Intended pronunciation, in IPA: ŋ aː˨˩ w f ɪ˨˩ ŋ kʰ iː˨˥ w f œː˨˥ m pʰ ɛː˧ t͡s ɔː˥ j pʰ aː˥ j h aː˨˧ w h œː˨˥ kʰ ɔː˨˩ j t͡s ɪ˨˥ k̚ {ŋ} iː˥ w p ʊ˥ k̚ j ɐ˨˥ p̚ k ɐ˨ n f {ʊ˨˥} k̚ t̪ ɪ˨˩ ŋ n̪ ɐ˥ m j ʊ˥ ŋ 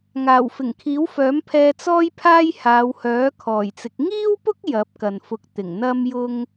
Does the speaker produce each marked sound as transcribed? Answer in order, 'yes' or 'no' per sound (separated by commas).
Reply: yes, yes